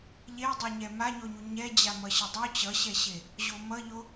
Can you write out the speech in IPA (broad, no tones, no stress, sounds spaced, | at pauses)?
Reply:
ʎ e dˤ ɛ ɲ ɛ m a ɲ o ɲ u ɲ ɛ d͡ʑ a m ʌ ɕ ʌ dˤ o t͡ɕ ʌ ɕ ɛ ɕ e | ʑ o m ʌ ʎ o